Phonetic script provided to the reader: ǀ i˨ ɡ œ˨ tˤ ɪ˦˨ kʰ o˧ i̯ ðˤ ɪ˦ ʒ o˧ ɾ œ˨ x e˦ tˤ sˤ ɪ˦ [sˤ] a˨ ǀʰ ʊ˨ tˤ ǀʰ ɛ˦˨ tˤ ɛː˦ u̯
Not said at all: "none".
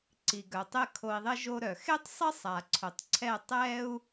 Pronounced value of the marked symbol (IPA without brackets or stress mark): sˤ